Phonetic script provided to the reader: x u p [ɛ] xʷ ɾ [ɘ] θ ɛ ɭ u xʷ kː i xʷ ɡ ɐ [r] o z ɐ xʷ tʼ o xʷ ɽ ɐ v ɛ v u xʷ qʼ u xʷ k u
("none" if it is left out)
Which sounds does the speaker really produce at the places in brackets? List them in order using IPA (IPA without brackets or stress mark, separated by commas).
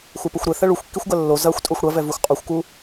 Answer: ɘ, ɘ, lː